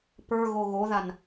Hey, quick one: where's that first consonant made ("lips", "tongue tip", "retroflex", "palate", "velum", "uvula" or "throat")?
lips